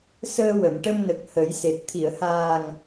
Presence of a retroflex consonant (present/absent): present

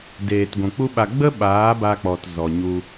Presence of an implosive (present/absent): present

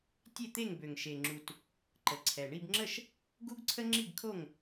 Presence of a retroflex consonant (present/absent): present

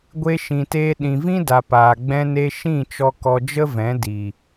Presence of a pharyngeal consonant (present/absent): absent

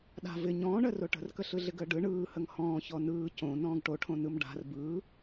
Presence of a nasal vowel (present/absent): present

